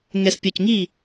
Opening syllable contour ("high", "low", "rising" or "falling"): low